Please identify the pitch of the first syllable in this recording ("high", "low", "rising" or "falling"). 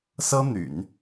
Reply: high